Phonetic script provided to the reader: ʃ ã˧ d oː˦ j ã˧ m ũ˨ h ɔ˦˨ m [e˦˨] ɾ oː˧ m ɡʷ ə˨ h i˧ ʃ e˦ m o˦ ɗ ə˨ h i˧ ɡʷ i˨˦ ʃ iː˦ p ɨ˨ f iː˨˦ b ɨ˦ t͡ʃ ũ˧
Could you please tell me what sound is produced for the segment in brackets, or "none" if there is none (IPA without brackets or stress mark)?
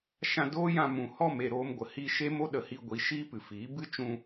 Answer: e˦˨